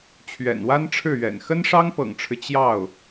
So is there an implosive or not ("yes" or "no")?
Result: no